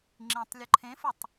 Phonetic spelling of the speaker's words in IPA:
ŋ͡ǁ ĩ tˤ lʲ ʊ ǃʰ ẽ f ʊ tˤ

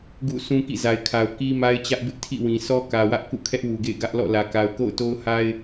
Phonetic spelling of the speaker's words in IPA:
ɡ ṵ˦˨ sʰ ũ˦ k ḭ˦˨ z a˨ ɪ̯ kʰ a˨ ʊ̯ k i˦ m a˦ ɪ̯ t͡ɕ ä˦ ʔ b ɪ˦ ʔ tʰ ḭ˦˨ w ĩ˨ s ɔ˦ k ä˨ w ä˦ ʔ k ṵ˦˨ kʰ ɛ˦ ʔ w u˨ ɡ ḛ˦˨ ɪ̯ ɡ ä˦ ʔ l ɔ̰˦˨ l ä˨ k a˨ ʊ̯ k o̰˦˨ ʊ̯ t o˦ ʊ̯ h a˦ ɪ̯

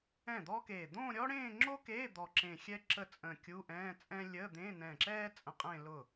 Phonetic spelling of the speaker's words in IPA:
ɛ̃˥˩ d̪ ɔ˥ k eː˧˩ d̪ õ˥˧ ɾʲ ɔ˥ ɽ ẽː˥˧ ŋ͡ǁ o˥ k eː˧˥˧ d̪ ɔ˧˩ ǁ ẽ˧˩ xʲ ɛ˥ ǁ ə˥˩ t͡sʼ ə̃˧˩ kʲ u˧˥˧ ʔ ɛ̃ː˧˥˧ t͡sʼ ɛ̃˥ lʲ ə˧˥˧ d̪ ẽ˧˥˧ n ɛ̃ː˧˩ ǁ ɛː˥ t͡sʼ ə̃˧˥˧ qʼ ẽ˥˧ l ʊ˥˩

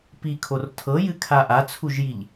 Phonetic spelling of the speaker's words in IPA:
p i kʰ o r tʰ ɤ j ɨ kʰ a ʔ a t͡sʰ u ʒ j i ʎ

